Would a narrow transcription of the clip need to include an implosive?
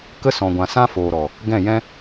no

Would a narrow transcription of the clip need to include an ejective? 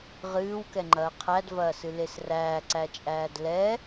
yes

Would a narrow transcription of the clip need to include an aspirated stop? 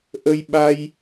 no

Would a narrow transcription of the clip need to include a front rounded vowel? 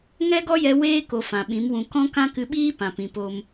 no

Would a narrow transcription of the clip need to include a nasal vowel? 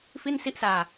no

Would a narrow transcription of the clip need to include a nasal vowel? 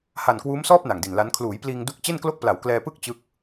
no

